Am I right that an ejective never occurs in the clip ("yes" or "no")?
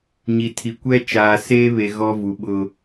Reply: yes